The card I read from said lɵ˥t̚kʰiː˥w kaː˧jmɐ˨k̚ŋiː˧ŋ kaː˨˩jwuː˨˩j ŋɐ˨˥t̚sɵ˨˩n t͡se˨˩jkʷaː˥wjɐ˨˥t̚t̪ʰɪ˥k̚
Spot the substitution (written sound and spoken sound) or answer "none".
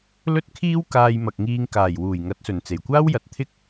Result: none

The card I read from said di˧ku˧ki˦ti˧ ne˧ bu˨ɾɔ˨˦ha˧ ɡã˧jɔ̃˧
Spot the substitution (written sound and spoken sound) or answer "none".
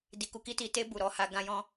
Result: n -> t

